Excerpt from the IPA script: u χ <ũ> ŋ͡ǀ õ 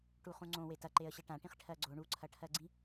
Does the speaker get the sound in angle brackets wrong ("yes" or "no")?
no